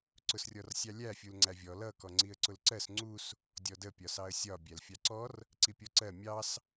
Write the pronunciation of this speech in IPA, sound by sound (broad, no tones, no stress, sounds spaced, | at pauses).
ǀ ʊ s rʲ ɔ r sʲ ɑ lʲ æ fʲ u l ŋ͡ǀ æ vʲ ɔ l ʌ k ɔ ŋ͡ǀ i ə̯ ǀ ʊ l ǀ ɜ s ŋ͡ǀ u s | dʲ ɔ d ə pʲ ɒ s ɑ ə̯ sʲ ɒ bʲ æ l fʲ ɑ ǀ ɔ r | ǀ i pʲ ɔ ǀ ɜ mʲ ɑ s